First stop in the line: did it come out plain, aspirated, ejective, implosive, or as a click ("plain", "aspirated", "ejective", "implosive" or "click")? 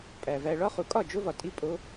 ejective